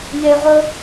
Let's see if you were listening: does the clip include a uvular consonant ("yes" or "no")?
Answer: yes